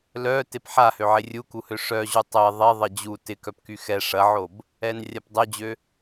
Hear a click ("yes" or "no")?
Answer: no